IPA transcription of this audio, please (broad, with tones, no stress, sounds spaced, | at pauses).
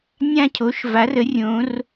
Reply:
nʲ ã˦ cʰ o˨˦ ʃ v a˨˦ r ə˨˦ rʲ õ˨˦ r